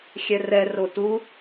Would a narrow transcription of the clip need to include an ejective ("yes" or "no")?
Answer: no